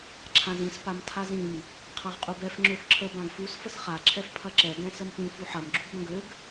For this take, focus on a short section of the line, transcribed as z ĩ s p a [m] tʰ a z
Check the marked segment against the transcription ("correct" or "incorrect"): correct